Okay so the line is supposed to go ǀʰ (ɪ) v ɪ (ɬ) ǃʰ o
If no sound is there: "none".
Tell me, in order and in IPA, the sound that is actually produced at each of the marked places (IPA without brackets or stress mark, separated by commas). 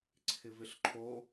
ɪ, ɬ